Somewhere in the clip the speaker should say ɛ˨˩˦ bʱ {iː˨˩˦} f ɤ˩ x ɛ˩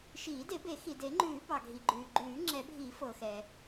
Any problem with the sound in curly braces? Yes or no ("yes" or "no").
yes